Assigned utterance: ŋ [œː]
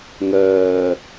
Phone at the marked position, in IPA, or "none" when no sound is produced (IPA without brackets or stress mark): œː